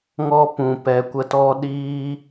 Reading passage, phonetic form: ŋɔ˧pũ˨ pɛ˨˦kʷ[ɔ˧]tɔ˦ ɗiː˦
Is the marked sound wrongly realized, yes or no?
yes